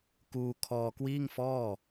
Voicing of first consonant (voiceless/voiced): voiceless